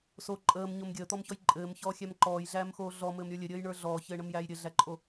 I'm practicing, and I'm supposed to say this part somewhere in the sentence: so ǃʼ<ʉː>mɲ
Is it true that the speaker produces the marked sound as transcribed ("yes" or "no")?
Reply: no